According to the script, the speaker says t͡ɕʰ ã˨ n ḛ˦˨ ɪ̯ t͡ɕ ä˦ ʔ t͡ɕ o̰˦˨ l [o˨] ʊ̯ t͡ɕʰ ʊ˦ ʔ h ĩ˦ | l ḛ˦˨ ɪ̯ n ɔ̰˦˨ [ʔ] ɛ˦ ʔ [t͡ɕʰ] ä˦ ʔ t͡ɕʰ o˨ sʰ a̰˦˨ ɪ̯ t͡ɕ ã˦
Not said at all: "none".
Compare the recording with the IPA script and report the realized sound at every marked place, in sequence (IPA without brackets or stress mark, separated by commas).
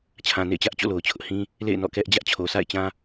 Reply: o˨, k, d͡ʑ